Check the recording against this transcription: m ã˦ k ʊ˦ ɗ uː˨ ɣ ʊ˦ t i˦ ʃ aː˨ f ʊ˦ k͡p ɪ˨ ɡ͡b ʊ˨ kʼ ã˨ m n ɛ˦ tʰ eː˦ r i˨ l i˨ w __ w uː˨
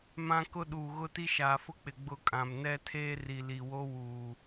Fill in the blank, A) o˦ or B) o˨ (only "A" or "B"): A